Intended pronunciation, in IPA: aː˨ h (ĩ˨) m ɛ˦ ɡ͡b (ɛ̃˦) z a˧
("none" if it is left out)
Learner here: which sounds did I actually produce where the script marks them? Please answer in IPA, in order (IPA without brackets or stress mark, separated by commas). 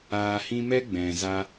ĩ˧, ɛ̃˨